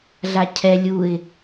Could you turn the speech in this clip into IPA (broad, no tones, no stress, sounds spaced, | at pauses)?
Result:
ɮ a cʰ ɛ lʲ u ɪ̯